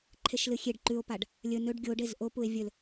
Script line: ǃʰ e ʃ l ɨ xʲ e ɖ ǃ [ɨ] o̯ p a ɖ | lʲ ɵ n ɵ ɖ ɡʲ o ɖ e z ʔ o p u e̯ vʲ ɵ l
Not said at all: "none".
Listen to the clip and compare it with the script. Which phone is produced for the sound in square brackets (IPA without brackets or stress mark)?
ʉ